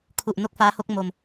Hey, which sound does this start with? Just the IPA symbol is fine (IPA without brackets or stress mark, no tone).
kʰ